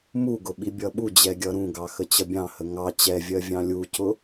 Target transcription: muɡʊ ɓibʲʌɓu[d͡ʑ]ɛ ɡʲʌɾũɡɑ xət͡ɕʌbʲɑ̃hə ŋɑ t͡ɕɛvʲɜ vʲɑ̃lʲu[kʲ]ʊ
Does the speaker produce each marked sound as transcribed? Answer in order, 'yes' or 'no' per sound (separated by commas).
yes, no